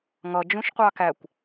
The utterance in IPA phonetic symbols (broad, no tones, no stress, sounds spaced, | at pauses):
ŋ ʌ d͡ʒ ũ ʃ qʷ ɑ k æ kʷ